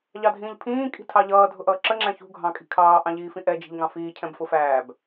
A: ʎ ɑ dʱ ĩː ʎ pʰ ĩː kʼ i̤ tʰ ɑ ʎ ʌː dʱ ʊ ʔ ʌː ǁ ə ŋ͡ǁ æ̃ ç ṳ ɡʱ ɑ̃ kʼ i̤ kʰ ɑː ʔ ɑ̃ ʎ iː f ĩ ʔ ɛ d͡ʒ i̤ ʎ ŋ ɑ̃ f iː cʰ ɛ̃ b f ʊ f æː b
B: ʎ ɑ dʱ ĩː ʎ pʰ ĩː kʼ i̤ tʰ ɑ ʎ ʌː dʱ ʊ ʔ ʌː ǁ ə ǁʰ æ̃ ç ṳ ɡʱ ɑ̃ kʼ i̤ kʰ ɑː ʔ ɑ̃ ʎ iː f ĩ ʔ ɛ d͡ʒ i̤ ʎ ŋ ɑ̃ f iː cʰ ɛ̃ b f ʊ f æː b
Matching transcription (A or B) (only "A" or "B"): A